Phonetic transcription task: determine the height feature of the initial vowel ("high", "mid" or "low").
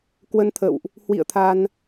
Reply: mid